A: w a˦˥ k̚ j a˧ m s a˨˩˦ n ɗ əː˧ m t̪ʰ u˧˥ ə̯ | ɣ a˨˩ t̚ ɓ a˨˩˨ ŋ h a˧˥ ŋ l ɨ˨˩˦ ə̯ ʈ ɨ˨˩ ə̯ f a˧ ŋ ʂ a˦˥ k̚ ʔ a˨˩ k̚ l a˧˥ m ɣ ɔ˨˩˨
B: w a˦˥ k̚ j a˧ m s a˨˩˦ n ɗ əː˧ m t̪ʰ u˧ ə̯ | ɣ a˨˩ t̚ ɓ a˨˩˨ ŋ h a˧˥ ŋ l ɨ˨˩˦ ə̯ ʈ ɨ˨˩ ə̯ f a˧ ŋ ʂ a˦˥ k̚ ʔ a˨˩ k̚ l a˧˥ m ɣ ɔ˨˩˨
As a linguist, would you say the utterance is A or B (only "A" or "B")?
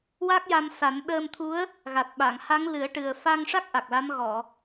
A